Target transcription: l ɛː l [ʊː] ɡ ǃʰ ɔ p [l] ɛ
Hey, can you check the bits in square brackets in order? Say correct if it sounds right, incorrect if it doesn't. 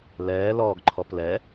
incorrect: ɔː, correct

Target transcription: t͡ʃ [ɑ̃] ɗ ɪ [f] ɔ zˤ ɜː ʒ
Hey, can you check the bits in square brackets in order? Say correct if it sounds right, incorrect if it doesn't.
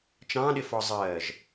correct, correct

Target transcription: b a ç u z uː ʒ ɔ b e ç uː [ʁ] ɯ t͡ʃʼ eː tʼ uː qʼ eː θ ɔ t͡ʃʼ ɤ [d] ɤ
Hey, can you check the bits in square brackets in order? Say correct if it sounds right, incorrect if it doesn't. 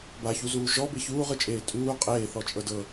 correct, correct

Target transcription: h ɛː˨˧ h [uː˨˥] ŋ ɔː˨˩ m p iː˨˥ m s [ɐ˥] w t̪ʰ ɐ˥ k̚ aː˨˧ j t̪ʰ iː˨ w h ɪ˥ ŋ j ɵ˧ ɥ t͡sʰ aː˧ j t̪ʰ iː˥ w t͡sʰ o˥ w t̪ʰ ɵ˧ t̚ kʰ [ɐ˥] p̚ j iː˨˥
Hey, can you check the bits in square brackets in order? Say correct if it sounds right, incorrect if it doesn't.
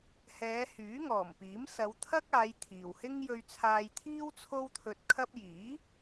incorrect: yː˨˥, incorrect: ɐ˨˧, correct

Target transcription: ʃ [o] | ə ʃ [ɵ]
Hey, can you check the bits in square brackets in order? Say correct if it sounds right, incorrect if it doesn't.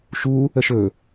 incorrect: u, correct

